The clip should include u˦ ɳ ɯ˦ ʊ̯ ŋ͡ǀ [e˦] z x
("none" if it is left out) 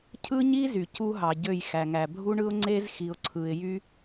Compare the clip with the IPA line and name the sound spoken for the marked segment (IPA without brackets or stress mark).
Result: e˦